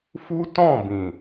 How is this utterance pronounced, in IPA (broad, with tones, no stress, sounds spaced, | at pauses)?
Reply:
f u˦ t ɔ̃˦˨ b ĩ˨